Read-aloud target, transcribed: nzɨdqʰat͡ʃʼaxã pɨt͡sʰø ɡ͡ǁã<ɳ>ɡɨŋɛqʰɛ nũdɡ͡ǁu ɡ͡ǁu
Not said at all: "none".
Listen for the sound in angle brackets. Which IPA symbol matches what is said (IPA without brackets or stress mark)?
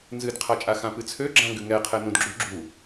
ŋ